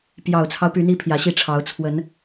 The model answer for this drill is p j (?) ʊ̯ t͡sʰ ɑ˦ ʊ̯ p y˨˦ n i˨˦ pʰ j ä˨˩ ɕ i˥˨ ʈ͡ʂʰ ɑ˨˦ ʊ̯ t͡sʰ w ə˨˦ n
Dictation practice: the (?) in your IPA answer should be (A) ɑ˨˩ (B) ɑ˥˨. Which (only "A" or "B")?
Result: A